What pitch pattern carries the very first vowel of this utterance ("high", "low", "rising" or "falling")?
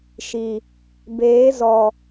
low